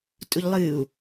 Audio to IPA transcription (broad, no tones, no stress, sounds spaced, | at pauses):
tʼ u ʎ lˠ ɨː u̯